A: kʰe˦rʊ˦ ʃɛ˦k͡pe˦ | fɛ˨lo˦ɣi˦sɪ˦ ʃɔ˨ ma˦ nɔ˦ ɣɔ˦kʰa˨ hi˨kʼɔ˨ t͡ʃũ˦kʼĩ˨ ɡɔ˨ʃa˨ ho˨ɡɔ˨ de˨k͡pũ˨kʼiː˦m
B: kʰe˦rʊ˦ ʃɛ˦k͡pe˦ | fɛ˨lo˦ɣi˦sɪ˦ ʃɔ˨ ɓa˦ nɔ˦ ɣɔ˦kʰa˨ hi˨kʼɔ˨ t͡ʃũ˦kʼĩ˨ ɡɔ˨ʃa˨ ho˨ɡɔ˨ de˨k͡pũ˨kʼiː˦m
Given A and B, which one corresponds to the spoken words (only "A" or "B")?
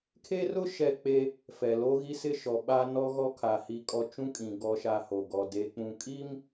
B